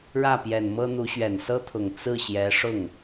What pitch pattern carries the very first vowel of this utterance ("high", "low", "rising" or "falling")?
falling